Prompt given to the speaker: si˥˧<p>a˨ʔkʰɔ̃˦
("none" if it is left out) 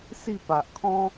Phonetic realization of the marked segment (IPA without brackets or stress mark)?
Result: p